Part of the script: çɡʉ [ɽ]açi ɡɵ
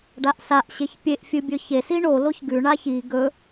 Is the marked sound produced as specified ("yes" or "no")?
no